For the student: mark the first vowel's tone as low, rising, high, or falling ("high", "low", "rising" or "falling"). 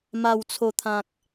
low